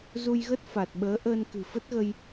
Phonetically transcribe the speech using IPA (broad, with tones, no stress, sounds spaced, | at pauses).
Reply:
z u˧ j ɣ ə˦˥ t̚ f a˨˩ t̚ ɓ əː˨˦ ʔ əː˧ n k ɨ̤˨˩ f ə˦˥ t̚ ɣ ə˧ j